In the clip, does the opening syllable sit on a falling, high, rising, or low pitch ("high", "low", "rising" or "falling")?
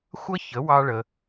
high